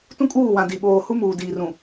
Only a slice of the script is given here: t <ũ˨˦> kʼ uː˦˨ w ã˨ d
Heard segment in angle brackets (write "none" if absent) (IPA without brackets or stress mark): ũ˦